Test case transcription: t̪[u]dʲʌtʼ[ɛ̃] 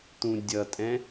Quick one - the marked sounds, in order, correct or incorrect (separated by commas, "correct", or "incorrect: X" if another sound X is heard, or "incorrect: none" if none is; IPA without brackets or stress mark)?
incorrect: ũ, correct